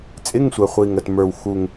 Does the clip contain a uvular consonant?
yes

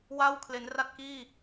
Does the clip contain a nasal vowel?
no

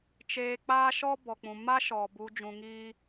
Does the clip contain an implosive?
no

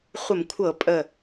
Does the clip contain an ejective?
yes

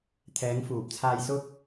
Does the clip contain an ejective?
no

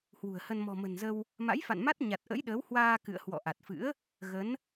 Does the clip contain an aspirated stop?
no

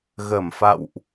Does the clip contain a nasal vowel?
no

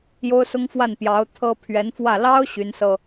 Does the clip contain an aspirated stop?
yes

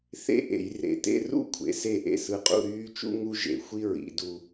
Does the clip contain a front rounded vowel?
yes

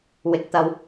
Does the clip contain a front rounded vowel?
no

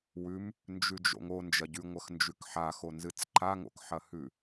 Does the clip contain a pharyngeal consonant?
yes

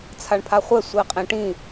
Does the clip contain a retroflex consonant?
yes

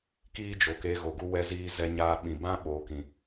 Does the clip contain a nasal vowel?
yes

